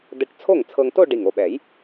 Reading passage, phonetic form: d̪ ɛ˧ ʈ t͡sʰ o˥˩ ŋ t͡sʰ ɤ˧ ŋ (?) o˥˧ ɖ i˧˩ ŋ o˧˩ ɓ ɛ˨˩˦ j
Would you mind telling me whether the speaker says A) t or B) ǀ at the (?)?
A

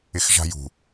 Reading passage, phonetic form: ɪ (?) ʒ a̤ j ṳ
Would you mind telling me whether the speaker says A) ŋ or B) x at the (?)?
B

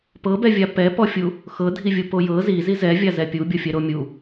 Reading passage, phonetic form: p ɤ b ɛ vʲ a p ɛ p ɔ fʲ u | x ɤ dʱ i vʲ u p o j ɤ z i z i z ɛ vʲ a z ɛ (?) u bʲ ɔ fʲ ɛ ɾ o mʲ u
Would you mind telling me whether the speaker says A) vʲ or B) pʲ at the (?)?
B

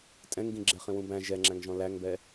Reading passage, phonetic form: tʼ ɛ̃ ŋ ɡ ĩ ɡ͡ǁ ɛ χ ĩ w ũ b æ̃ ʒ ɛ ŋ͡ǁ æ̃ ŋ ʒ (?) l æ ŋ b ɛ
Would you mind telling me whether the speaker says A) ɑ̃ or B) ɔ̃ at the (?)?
B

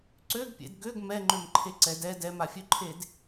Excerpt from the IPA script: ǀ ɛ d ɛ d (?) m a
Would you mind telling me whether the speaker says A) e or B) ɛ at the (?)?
B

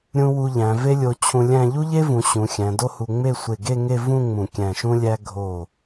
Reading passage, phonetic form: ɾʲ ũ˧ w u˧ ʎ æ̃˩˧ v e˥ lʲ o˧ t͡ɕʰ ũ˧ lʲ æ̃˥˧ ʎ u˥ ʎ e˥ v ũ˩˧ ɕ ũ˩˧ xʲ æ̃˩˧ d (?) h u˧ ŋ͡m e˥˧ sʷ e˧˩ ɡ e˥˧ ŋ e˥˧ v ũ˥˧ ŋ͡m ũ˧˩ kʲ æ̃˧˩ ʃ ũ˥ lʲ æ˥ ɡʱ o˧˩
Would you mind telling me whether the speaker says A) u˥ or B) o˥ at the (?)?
B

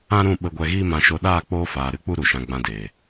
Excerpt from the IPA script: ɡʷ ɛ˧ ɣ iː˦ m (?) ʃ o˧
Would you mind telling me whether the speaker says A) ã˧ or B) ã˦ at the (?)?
A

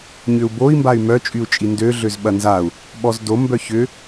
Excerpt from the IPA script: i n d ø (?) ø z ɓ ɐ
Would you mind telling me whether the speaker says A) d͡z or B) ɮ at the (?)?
B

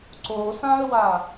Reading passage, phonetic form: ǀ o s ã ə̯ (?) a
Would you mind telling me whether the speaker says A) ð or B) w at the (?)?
B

